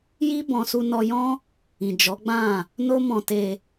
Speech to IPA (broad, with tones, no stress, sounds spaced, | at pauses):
j i˦ b ɔ̃˧ s u˧ n ɔ˧ j ɔ̃˦ | ĩ˨ d͡ʒ ɔ˨˦ ɡ͡b ã˦˨ | n o˦ m ɔ̃˧ t e˧